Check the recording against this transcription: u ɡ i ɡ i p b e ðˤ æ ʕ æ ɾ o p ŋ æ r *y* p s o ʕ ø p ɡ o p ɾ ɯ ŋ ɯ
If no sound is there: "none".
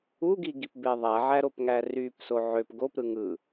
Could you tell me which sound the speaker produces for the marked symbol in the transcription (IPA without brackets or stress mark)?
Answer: y